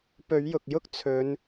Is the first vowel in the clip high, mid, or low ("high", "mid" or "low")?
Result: mid